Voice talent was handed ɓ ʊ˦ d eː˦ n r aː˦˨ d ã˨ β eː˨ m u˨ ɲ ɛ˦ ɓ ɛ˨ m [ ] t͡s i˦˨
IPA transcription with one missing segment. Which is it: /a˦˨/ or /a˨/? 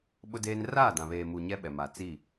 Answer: a˨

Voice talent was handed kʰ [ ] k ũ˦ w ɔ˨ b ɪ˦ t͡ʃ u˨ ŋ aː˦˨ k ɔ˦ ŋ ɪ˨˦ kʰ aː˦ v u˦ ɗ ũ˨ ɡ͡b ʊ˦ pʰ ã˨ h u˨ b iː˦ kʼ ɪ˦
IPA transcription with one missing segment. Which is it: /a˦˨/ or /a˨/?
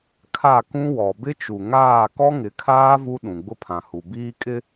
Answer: a˦˨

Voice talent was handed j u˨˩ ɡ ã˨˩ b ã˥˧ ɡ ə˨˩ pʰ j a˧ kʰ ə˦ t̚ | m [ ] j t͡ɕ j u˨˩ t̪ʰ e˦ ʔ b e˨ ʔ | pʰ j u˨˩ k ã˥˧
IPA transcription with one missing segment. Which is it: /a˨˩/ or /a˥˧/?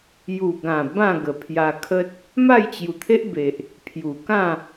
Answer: a˥˧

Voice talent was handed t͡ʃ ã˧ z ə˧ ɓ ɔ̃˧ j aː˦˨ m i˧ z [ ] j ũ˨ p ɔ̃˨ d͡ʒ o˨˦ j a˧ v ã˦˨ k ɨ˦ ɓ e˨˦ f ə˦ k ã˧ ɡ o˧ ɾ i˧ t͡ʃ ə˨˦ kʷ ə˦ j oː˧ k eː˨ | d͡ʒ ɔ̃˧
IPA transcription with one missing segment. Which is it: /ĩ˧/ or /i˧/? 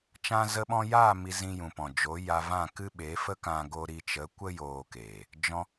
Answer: ĩ˧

